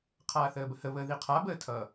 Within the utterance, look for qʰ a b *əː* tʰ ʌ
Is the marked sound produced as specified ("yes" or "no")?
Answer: yes